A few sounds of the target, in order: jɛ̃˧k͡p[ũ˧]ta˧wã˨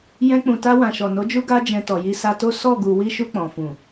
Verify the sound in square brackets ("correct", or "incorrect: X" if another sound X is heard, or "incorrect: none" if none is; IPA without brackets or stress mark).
incorrect: ũ˨